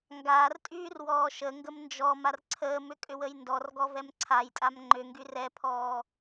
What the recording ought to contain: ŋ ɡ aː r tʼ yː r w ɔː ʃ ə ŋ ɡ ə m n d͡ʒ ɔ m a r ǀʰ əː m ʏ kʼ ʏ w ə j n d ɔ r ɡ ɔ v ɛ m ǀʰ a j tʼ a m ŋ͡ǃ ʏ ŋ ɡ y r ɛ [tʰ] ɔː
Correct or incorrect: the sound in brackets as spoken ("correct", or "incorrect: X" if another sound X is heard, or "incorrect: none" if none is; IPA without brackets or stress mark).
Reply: incorrect: pʰ